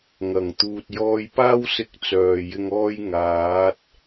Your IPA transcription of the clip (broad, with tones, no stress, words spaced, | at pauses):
ŋɐ˨˩ŋ t̪uː˨t̚ jɔː˧jpaː˥wsɪ˧k̚ t͡sœː˨˩jɪ˧ŋɔː˥j ŋaː˨˥t̚